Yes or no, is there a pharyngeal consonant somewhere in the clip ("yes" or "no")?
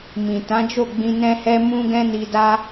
no